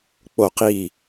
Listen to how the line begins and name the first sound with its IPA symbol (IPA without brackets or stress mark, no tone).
k͡p